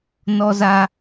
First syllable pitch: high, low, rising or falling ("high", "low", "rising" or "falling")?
high